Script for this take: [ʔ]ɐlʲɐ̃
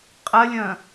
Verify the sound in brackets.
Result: incorrect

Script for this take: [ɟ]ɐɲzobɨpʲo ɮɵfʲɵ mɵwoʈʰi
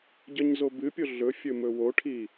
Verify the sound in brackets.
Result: correct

